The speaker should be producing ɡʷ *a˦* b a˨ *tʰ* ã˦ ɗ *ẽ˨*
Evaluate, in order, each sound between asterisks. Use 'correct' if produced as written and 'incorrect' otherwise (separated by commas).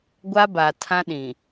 correct, correct, incorrect